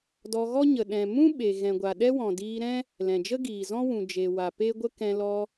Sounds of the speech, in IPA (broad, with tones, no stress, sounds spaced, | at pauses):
d ɔ˧ ɣ ɔ˦ ɲ ə˨ ɗ ɛ̃˨ m ũ˦ ɓ e˨ ɣ ɛ̃˨ ɡʷ a˨ ɗ ɛ˦ w ɔ̃˨ d iː˧ ɾ ɛ̃˦ | l ɛ̃˨ d͡ʒ ə˦ ɡ iː˨ z ɔ̃˦ w ũ˨ d͡ʒ e˨ w a˨ p e˦ ɡʷ ə˦ k ɛ̃˧ l ɔ˧